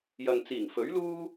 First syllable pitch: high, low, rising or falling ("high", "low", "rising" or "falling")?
low